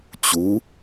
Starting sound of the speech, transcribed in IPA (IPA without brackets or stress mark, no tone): t͡ɕ